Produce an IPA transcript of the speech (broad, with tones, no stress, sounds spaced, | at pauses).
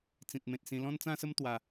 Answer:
t͡s ĩ˨ t̚ m ẽ˨ t̚ s ĩ˧ l ɔ̃˦ n t͡s ã˦ s ə˦ m t̪ w a˧